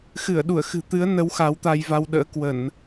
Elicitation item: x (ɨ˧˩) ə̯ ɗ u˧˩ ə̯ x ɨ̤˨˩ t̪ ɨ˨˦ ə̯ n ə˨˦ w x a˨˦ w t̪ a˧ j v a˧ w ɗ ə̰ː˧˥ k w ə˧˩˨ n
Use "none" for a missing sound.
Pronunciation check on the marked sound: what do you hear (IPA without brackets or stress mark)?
ɨ˧˩